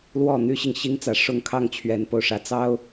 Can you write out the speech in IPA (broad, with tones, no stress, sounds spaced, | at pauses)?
l w ɔ˥˨ n̪ y˦ ɕ i˨ ŋ ɕ i˦ ŋ t͡s ä˨˦ ʂ ʊ˦ ŋ kʰ ɑ˥˨ ŋ t͡ɕʰ ɥ ɛ˨˦ n p o˨˩ ʊ̯ ʂ ä˨˦ t͡s ɑ˦ ʊ̯